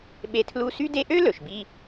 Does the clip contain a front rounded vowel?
yes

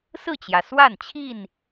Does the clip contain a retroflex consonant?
no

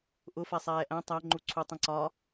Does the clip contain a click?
yes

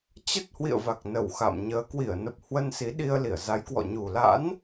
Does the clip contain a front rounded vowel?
no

